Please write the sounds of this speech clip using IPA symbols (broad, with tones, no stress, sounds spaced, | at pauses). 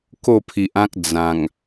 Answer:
k o˥˧ pʰ i˨ ʔ ã˦ k̚ d͡z ã˨˩ ŋ